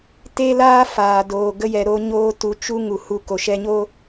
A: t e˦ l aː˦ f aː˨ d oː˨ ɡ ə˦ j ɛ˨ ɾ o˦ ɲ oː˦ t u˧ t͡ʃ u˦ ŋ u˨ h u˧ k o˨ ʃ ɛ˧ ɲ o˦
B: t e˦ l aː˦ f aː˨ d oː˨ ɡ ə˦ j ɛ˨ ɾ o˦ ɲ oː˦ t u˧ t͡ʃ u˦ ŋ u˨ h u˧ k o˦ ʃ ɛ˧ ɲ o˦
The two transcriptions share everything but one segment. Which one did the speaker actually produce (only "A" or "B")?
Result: A